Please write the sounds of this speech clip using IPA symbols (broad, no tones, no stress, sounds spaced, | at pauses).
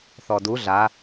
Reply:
θ ɔ d u ɮ a